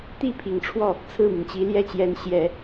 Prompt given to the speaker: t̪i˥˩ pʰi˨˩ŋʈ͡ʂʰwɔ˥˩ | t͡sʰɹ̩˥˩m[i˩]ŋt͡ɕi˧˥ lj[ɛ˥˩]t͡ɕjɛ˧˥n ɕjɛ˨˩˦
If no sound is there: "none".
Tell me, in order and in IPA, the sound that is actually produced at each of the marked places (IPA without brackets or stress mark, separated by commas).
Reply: i˩, ɛ˥˩